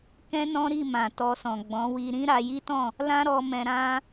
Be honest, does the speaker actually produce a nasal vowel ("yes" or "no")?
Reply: yes